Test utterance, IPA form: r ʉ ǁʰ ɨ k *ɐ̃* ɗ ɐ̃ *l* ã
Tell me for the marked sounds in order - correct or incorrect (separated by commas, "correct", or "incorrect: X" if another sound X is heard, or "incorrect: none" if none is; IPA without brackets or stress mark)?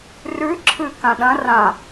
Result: incorrect: ã, incorrect: r